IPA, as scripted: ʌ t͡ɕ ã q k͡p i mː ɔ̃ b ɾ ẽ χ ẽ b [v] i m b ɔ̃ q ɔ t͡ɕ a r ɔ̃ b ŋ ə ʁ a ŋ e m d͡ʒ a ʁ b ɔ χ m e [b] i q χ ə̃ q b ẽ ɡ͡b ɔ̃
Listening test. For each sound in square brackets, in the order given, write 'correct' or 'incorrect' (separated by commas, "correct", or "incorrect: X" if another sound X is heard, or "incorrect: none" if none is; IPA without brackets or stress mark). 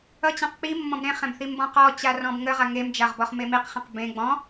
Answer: incorrect: θ, incorrect: m